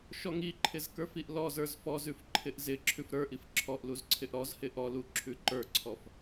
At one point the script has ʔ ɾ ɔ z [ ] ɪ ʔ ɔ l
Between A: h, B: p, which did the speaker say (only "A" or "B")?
A